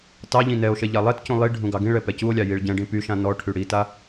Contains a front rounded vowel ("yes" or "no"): yes